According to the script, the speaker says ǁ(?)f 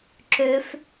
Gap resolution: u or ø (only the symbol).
ø